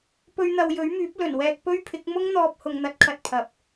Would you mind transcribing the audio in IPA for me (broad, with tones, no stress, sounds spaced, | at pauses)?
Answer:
p ɵ˧ ɥ n̪ ɐ˨ w j ɵ˨˥ ɥ m yː˨˥ p̚ l ɵ˨˩ n w ɛː˧ k̚ p ɵ˥ ɥ pʰ ɪ˨˥ k̚ m ʊ˥ ŋ n̪ ɔː˧ p̚ h ʊ˨ ŋ n̪ ɐ˨˥ t̚ kʰ ɐ˨ t̚ pʰ ɐ˨ p̚